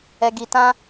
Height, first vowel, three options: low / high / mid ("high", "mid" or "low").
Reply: mid